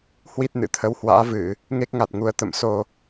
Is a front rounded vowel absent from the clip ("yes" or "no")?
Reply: yes